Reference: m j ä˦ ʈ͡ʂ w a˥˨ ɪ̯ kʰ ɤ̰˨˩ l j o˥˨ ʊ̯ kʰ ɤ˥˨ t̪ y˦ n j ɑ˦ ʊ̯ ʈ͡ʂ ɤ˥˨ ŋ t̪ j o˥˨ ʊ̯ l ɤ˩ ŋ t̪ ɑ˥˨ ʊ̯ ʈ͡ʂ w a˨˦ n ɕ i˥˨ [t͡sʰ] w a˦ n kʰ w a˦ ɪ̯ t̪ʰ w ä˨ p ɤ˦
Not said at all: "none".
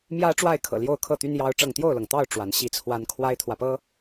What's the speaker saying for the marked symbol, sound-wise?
t͡sʰ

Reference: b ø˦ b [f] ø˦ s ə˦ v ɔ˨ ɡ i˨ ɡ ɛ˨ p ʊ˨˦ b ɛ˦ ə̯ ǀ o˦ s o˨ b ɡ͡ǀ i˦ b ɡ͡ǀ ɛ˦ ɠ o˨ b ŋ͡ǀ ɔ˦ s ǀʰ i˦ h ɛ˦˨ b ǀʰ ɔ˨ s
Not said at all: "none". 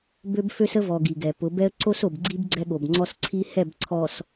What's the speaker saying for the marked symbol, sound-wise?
f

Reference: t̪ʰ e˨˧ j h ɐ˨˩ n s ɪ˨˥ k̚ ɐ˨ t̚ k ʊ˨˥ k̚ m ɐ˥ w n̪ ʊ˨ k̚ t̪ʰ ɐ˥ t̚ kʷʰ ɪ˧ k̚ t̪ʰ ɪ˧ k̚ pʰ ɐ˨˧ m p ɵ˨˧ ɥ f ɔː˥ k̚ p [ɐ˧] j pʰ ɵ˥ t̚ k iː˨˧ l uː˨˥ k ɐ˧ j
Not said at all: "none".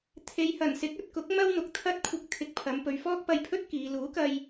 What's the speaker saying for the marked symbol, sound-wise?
ɐ˧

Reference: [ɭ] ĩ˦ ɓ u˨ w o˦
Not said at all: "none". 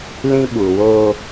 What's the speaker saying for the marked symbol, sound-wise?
l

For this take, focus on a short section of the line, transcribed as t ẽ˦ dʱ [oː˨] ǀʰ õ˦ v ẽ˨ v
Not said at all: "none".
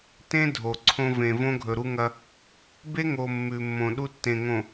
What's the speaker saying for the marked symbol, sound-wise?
o˨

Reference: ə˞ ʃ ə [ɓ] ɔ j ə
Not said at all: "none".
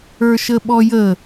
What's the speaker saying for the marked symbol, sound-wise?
ɓ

